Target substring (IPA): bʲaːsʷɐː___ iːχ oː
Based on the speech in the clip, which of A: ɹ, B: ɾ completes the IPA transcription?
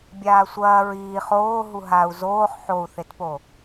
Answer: A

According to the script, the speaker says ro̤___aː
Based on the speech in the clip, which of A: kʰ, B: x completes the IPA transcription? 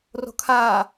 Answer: A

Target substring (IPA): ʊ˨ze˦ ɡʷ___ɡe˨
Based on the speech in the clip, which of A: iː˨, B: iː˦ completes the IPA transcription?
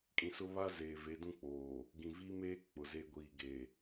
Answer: A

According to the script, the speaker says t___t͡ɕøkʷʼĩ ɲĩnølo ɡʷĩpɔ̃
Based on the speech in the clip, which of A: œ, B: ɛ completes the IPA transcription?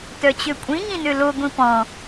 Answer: A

